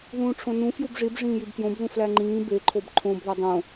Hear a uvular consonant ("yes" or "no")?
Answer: no